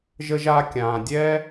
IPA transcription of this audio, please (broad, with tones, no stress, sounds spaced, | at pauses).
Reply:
ʒ ə˥ ʒ aː˥ kʲ ãː˩ dʲ ɛː˥